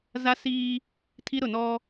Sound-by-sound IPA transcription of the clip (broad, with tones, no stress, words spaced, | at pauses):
za˦siː˦ | tʰi˦ɾʊ˦˨ nɔ˦